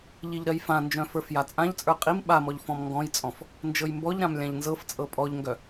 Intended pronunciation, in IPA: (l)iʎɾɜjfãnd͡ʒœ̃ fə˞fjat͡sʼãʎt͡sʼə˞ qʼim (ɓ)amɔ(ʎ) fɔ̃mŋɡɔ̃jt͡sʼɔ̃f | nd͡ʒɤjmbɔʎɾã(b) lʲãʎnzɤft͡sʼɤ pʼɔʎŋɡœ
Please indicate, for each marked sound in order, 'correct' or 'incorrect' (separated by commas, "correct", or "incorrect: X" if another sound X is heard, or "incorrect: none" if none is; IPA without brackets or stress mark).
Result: incorrect: ʎ, correct, correct, incorrect: m